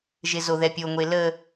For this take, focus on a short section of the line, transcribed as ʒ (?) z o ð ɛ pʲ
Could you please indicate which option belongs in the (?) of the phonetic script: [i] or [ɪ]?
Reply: ɪ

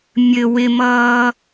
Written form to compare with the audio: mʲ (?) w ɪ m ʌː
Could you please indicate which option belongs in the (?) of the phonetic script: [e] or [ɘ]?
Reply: ɘ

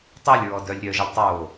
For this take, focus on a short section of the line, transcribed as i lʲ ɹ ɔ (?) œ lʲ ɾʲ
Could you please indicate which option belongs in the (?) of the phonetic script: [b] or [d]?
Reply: d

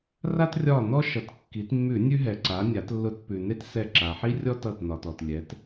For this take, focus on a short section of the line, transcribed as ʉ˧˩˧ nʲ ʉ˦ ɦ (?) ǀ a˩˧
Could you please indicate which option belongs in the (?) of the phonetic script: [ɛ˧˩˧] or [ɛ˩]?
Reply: ɛ˩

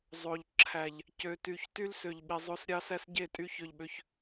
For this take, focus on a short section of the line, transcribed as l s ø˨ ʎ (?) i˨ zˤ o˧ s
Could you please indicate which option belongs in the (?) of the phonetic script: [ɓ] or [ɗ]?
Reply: ɓ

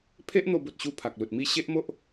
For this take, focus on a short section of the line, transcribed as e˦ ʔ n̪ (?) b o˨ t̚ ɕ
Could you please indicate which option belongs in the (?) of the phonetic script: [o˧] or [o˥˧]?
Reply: o˧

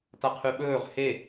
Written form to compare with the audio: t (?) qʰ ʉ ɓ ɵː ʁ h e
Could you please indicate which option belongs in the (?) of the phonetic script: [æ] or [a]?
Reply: a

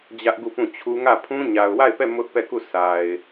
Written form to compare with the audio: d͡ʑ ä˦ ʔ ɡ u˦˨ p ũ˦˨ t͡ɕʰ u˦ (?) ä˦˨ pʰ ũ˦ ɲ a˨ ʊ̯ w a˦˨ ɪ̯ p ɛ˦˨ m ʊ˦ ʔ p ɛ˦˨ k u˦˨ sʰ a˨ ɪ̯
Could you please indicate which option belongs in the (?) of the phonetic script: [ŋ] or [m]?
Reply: ŋ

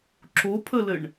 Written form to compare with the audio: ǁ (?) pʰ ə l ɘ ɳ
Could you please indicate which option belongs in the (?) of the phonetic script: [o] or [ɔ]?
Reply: o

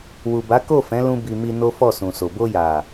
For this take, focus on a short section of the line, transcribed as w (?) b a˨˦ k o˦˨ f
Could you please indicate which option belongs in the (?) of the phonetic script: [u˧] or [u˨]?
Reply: u˨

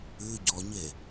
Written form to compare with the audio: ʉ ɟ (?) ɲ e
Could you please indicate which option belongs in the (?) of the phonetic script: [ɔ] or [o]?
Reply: ɔ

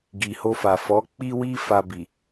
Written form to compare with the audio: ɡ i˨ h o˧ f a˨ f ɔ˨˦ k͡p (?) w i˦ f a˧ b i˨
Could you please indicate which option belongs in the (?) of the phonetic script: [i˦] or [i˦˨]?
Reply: i˦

